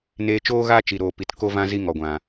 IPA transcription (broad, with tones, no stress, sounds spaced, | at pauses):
n eː˧ t͡ʃ oː˦ ɣ aː˦ t͡ʃ i˨ ɾ oː˨ p i˨ t k o˦ v ã˦ z i˦ ŋ ɔ˨ ɡʷ ã˨